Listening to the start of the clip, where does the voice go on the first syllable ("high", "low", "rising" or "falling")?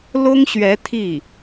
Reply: high